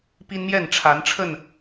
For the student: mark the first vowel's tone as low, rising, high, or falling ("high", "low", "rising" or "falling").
high